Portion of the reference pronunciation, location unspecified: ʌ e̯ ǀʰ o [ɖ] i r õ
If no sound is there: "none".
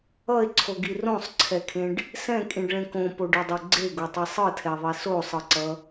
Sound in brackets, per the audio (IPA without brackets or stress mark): ɡ